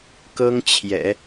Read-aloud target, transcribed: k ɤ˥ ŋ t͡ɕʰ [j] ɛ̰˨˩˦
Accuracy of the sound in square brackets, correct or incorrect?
correct